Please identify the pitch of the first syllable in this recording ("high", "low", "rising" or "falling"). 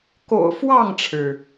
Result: low